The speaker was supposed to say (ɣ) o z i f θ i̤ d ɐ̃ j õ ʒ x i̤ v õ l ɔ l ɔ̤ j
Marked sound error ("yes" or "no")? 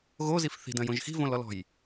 no